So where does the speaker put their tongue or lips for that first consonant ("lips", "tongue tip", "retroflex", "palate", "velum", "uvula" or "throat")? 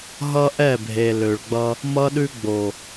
throat